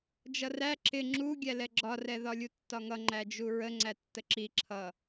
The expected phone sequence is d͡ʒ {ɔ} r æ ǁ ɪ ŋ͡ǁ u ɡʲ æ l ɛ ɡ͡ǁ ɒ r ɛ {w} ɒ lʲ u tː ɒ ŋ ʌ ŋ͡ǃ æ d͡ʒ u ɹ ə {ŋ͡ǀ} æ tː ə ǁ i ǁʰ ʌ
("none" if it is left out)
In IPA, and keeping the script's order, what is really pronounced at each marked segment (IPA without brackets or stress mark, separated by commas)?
ʌ, ð, ŋ͡ǀ